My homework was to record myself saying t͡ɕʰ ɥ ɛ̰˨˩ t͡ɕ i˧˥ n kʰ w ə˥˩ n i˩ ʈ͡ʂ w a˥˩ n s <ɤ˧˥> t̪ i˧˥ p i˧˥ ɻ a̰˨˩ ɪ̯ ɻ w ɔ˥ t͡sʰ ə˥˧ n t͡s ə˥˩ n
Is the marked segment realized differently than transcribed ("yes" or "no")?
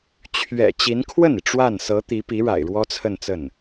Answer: no